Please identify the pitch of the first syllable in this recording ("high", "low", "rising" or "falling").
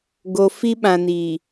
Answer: low